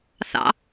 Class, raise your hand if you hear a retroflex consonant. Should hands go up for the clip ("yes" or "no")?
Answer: no